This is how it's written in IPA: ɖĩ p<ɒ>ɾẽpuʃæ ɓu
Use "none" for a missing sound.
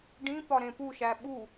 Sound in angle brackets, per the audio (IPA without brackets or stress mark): ɒ